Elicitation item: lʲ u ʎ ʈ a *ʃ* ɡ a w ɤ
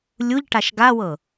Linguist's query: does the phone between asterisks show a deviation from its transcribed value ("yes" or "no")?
no